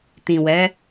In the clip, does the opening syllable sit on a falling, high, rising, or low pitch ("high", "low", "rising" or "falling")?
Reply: low